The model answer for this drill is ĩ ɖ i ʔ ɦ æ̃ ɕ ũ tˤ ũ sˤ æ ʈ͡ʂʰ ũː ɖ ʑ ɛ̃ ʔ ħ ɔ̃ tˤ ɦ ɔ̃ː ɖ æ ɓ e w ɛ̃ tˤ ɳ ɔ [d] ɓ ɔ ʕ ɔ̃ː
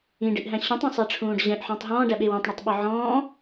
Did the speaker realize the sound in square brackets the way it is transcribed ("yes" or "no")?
no